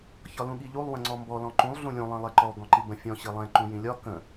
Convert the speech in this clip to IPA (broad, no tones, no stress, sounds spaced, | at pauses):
ç ɒ l ũ ɠ i ʎ u lˠ w ə̃ ŋ͡ǀ ɔ m b ɔ l ɔ̃ ǃ ũ lˠ ɮ ũ lʲ ũ lˠ ĩ lˠ ɛ ǃ ɔ ɡ ɔ̃ ǃ i b ə̃ fʲ ɔ̃ ɕ i lˠ ɛ̃ ǃ ũ j ĩ lʲ ɒ k ə̃